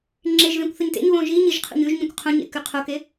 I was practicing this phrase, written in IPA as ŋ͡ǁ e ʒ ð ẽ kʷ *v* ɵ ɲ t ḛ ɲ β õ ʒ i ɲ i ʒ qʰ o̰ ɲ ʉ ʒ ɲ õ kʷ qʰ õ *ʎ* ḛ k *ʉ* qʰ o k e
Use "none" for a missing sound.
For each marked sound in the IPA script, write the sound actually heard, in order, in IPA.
θ, ɲ, ʉ

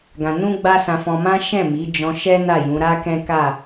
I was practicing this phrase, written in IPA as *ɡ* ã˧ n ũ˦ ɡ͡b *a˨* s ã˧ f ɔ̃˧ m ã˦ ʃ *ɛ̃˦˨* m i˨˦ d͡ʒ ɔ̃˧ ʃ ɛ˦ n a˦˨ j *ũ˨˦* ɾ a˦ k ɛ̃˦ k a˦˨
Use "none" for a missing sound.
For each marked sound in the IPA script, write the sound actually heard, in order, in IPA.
ɡ, a˦, ɛ̃˦˨, ũ˨˦

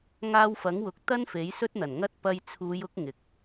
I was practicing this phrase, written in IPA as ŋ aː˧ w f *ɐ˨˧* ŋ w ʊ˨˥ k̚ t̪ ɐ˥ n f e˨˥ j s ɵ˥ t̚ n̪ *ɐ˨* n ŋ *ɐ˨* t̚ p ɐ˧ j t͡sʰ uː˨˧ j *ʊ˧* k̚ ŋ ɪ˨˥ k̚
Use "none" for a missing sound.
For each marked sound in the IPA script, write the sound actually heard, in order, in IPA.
ɐ˨˥, ɐ˨˩, ɐ˥, ʊ˧

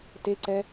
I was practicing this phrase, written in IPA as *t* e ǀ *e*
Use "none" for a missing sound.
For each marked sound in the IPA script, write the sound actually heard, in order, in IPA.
t, ɛ

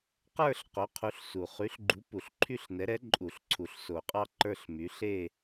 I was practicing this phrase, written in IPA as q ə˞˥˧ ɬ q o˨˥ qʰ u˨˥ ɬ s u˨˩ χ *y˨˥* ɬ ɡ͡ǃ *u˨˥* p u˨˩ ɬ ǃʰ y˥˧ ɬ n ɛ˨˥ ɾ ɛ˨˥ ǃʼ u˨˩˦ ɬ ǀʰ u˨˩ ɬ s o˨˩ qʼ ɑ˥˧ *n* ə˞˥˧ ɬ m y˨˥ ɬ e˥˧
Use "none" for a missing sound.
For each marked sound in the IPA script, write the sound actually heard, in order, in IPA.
y˨˥, u˨˥, ǃ

